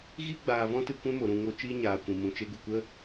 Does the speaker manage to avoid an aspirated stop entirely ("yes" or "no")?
yes